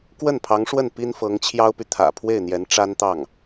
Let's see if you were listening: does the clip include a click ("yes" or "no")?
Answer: no